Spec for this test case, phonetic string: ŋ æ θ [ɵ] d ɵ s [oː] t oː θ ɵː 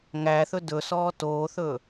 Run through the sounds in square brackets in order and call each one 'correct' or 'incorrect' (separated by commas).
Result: correct, incorrect